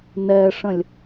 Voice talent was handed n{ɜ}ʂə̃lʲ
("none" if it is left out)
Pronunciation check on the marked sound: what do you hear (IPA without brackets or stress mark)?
ɛ